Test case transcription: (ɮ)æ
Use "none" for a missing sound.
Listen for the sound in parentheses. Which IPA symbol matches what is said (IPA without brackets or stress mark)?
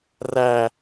r